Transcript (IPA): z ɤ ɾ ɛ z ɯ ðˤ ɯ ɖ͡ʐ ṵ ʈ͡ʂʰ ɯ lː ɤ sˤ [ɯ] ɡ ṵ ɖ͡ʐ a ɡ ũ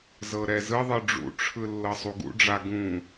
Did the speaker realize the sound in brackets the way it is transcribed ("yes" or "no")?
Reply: no